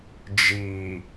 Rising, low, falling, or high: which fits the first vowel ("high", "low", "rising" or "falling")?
low